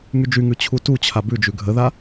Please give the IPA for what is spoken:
ŋ y d͡ʒ y ŋ ʉ t͡ɕʰ u t u t͡ɕʰ a b ʉ d͡ʒ ʉ ɡʱ ə ð a

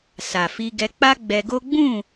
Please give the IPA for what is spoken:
s a˨ f i˧ ɡ ɛ˧ k͡p a˦ ɡ͡b ɛ˧ ɡ o˦ ɡ͡b ũ˦˨

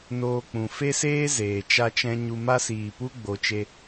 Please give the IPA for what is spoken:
n oː˧ k͡p ũ˨ f e˦ s eː˦ z eː˨ t͡ʃ a˦ t͡ʃ ɛ̃˦ ɲ u˧ m a˧ s iː˨ p u˧ ɡ͡b o˧ t͡ʃ e˦

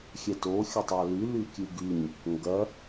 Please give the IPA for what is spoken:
xʲ ɛ t o xʲ ə tˤ ɑ l y l y kʲ ɨ ɡ y ɲ | ŋ ɡ ɐ

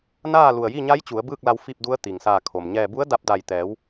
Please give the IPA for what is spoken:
n aː˥˨ l u˧˩ ə̯ j i˥˨ ɲ a˧˥ j t͡ɕ u˩˧ ə̯ b ɯː˥˨ k̚ l a˧ w f i˥˨ p̚ d u˧˥ ə̯ t̪ i˩ ŋ s aː˧˩ kʰ o˩ m ɲ ɛː˧˩ b u˧˥ ə̯ d a˧ p̚ d a˧˩ j t̪ ɛː˩˧ w

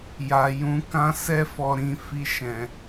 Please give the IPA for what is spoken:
j a˨ j ũ˧ k ã˦ s ɛ˦ f ɔ˧ ɾ ĩ˧ f i˧ ʃ ɛ̃˨

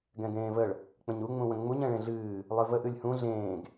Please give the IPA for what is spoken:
ɡ ɛ̃ ɡ ẽː v ə ɭ | k͡p ə̃ ɲ u ŋ͡m ũ w ə̃ ŋ͡m u ɲ ɛ̃ ɭ ẽ ɮ ɨː | lˠ ɨ v ə ʔ ɨ lʲ h ũ ɮ ẽː ɡ

